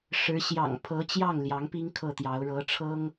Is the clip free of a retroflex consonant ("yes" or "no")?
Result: no